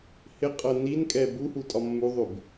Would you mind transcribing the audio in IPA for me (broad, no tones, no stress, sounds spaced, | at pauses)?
h ɪ qʼ ɤ n i n kʼ ɛ b u h u tʼ ɒ mː u ðˤ ʉ b